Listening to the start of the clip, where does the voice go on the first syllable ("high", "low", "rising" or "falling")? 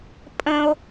high